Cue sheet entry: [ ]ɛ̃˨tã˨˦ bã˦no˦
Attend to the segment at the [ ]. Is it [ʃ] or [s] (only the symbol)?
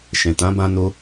ʃ